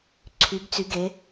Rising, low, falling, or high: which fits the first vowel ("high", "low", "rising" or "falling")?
rising